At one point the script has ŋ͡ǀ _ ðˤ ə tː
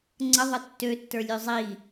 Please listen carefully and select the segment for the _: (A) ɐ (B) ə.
B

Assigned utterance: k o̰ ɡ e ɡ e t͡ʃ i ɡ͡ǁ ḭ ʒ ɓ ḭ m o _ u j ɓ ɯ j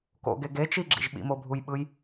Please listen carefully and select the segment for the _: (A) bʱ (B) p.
A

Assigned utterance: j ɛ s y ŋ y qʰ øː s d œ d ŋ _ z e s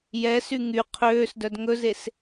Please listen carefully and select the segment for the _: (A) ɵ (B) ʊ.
A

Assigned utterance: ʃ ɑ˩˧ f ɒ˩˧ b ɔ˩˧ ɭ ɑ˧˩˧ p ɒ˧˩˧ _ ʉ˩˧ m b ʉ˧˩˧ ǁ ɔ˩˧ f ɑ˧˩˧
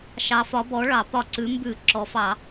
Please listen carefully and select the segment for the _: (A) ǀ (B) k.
A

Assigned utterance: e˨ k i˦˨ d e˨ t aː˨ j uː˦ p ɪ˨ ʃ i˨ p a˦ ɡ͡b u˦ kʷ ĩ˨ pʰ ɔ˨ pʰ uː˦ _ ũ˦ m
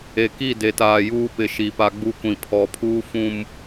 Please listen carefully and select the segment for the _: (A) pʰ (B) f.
B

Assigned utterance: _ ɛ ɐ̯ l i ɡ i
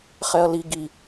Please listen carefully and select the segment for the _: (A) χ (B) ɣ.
A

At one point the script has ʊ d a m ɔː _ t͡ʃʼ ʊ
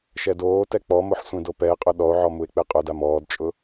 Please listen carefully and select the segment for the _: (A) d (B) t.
A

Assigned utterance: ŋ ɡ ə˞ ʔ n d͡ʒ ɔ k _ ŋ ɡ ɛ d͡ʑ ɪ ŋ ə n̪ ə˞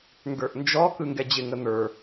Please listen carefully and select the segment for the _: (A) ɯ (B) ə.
A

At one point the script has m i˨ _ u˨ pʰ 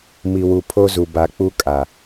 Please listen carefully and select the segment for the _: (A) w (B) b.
A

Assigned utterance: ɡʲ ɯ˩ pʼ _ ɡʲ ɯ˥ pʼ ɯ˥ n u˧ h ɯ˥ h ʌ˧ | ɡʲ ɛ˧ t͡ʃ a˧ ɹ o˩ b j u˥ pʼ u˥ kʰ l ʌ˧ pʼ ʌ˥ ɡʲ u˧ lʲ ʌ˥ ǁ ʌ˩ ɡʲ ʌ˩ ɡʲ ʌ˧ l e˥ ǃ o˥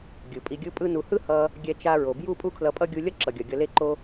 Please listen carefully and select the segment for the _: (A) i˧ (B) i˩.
A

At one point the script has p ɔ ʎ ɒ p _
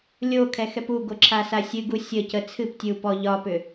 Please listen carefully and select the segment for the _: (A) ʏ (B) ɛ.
A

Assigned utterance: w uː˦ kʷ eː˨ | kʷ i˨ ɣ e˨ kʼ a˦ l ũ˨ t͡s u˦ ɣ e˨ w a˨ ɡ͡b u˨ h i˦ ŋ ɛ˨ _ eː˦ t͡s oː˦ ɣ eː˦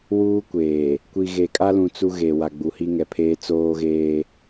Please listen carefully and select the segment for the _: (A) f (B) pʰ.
B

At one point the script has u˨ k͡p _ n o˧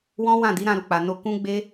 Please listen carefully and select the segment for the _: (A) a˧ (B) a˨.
B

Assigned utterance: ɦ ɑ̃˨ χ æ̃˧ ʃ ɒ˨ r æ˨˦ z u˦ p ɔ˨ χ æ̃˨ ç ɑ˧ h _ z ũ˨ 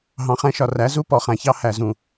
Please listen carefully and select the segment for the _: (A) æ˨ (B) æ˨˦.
A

